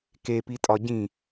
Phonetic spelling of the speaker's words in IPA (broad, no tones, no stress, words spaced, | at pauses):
kepitʼɒ ɟĩ